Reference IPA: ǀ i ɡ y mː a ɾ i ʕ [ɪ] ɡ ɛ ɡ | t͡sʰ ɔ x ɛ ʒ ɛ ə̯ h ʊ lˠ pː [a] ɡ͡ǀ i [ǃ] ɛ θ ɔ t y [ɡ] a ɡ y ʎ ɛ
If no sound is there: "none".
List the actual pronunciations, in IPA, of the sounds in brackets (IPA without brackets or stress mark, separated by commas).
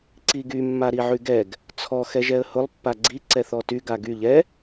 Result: y, a, ǀ, ɡ